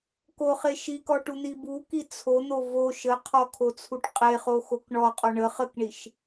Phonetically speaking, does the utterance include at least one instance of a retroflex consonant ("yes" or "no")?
yes